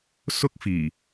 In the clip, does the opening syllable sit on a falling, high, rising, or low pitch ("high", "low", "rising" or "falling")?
high